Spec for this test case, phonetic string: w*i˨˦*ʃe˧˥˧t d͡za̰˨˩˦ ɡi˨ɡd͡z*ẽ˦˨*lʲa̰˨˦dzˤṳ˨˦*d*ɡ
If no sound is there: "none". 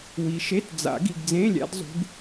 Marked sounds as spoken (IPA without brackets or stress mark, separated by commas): i˨, ẽ˧˥˧, none